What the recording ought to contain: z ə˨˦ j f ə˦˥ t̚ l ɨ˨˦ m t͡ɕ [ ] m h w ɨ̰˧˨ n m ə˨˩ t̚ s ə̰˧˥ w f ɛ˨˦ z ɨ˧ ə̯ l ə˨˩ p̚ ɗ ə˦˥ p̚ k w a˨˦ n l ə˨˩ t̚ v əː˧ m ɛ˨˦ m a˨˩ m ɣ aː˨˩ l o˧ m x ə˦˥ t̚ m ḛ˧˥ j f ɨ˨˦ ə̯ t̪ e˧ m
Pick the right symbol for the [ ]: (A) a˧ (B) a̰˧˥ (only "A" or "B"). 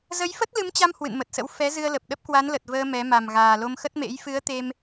A